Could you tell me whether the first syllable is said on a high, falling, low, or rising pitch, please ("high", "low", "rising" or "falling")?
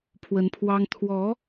rising